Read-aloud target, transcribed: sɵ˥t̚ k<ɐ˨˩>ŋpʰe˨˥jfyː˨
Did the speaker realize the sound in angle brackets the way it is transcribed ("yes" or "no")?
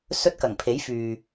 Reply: yes